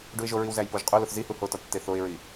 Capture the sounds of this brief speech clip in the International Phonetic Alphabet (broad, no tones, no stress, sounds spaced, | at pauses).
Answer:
ɖ u ɪ̯ ʒ o ɹ i w z æ j p o ʒ qʼ u l o θ z i h u h o t ɒ tː e θ o ɪ̯ ɹ i